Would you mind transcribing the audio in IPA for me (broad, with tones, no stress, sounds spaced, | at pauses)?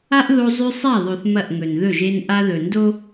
a˦ ʔ ð o˦ zˤ ʉ˦ sˤ a˦˨ ðˤ ʉ˨ θ m ɐ˦˨ ʔ ŋ ɵ˨ n ð ɵ˦˨ ʒ e˦ n ʔ a˦ ð ɵ˨ n d o˦